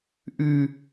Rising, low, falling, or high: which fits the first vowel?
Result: high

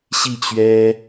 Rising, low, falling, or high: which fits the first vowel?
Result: falling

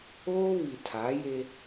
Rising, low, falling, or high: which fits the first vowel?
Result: high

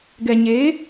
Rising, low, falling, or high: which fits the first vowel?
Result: low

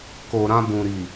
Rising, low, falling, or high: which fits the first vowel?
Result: low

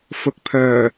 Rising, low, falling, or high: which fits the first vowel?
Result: rising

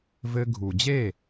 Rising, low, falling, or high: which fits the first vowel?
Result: high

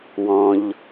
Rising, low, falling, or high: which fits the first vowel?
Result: low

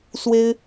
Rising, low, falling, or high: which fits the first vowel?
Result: high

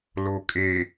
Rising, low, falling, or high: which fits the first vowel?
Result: low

